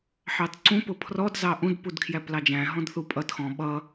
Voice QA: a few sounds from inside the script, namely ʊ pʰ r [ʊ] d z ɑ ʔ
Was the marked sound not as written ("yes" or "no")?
yes